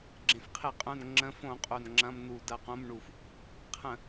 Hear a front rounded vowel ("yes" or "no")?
yes